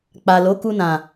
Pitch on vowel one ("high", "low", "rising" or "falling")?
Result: low